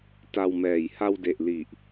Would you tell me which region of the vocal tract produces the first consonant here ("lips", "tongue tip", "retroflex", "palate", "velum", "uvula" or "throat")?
tongue tip